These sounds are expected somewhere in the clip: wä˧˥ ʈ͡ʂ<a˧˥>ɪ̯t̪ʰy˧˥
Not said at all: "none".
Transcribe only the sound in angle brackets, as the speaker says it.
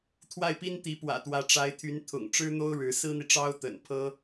a˧˥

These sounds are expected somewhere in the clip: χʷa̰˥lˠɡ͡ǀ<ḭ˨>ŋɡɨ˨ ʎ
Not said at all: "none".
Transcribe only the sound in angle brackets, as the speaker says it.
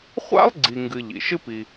i˨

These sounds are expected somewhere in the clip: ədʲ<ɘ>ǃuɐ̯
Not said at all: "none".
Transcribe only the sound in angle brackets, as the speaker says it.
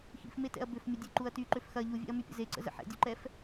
e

